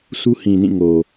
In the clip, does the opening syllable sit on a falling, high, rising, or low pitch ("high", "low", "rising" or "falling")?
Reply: high